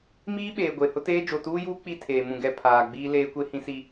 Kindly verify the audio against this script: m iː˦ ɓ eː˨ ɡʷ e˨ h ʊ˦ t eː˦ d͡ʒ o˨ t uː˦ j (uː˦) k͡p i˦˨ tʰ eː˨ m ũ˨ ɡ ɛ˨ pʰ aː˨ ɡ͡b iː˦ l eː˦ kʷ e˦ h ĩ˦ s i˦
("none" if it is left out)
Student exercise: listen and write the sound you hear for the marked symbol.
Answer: uː˦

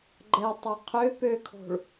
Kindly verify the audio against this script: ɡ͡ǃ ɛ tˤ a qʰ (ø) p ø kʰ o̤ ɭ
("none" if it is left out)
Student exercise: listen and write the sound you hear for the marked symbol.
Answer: ø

